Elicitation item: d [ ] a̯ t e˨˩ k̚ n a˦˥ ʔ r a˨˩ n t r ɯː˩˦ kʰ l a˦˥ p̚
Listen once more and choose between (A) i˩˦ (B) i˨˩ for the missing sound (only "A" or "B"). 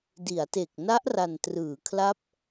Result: A